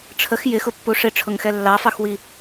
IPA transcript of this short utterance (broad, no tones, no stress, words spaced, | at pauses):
ʈ͡ʂʰəx jɪxʊpːu ʂɪʈ͡ʂʰʊŋxɛ lːɑfɑxwi